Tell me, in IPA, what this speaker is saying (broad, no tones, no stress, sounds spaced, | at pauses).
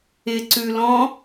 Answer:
ɪ ǀ ʉ l ɔ̃